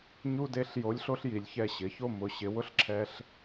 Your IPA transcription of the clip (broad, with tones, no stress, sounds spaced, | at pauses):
ɲ u˥ d e˧˥ ɬ j o˧˥ lʲ ɬ o˥ ɬ j i˩˥ lʲ ç ɛ˥˧ ɕ ɪ˩˥ ç o˥˧ m ʊ˩˥ ɕ ɪ˩˥ w ʊ˥ ɬ ǁʰ ɛ˥ ɬ